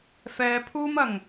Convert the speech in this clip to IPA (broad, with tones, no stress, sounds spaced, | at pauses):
f ɛː˨˧ pʰ uː˥ m ɐ˨˩ ŋ